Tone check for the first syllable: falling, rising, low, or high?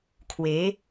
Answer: rising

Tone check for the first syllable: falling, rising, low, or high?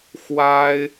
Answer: high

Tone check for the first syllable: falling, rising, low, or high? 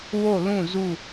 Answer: falling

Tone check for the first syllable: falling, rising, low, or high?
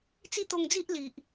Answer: falling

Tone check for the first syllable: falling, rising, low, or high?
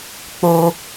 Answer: low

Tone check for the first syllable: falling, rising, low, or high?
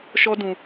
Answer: high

